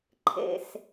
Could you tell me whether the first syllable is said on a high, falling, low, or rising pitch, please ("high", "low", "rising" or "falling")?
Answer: low